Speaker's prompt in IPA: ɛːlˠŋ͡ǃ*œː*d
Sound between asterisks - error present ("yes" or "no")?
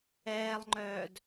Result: no